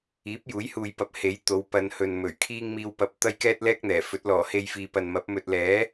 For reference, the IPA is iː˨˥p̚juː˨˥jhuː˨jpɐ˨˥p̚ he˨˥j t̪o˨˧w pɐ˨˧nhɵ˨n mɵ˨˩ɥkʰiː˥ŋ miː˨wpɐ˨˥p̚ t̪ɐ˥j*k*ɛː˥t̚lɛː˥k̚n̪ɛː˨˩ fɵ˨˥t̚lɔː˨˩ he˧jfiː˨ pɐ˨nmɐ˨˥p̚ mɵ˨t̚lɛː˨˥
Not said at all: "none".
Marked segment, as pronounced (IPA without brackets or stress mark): k